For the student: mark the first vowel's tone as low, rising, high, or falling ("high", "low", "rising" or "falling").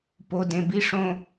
low